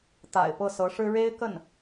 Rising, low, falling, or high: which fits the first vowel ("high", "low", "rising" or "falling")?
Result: low